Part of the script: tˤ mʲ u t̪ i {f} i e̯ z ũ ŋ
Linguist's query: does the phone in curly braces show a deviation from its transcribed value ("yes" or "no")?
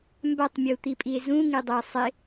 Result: yes